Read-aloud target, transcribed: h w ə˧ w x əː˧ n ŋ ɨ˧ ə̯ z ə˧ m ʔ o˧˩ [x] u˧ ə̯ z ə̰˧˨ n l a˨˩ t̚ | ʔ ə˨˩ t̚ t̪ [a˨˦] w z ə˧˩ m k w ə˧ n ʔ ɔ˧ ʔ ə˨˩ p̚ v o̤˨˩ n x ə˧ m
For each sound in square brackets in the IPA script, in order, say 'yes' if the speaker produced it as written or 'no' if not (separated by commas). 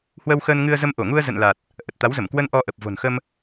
no, yes